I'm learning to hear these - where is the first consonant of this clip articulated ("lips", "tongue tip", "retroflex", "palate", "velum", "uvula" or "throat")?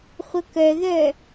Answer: uvula